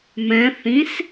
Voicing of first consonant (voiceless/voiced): voiced